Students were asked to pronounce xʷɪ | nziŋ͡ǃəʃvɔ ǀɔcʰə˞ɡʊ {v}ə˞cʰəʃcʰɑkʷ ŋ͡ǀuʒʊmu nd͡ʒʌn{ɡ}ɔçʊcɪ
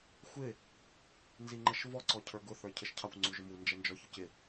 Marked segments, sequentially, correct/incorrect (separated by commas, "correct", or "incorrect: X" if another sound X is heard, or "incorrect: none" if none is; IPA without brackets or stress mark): incorrect: θ, incorrect: d͡ʒ